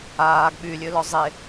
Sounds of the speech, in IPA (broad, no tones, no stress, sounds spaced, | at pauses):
aː ɡ ɓ y lʲ ø l ɔ zˤ e